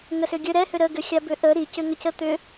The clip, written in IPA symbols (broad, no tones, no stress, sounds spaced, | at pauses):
ŋ ə s ʏ ɡʲ ə ɾ ɛ h ʏ ɾ ə ɡ ʏ xʲ a b ʏ ʔ ə ɾ i c ʏ ŋ ə c ə t̪ ʏ